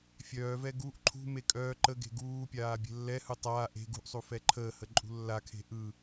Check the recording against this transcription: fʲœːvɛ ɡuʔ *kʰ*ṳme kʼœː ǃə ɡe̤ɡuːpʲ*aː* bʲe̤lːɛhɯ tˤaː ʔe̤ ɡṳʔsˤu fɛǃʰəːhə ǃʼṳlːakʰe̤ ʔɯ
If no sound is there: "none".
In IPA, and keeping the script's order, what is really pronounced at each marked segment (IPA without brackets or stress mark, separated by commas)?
ǃʰ, aː